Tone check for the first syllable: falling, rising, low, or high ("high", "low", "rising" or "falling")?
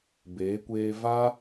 rising